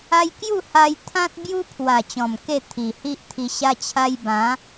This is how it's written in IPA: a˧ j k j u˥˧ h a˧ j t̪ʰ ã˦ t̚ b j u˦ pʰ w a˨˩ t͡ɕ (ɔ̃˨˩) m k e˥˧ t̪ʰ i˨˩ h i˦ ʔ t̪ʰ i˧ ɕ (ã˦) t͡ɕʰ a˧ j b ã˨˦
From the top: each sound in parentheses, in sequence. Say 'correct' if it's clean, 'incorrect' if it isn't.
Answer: correct, incorrect: a˦

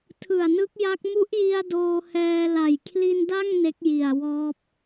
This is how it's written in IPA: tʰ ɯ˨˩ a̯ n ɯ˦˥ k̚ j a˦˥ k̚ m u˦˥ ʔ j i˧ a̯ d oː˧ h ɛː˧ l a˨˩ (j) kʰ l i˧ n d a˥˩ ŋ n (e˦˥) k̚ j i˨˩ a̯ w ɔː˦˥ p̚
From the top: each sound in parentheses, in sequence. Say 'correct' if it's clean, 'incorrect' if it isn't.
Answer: correct, correct

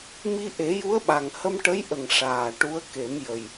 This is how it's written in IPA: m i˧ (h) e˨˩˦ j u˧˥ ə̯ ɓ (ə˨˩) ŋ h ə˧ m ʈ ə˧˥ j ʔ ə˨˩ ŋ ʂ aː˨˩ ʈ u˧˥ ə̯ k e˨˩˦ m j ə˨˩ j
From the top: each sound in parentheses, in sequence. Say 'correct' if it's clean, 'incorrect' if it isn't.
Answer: incorrect: ʔ, incorrect: a˨˩

